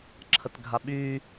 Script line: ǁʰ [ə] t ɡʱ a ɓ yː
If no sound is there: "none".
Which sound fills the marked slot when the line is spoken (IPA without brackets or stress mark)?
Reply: ə